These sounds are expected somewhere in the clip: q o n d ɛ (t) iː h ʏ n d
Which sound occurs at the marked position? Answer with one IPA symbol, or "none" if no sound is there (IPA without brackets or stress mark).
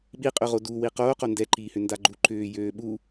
ǃ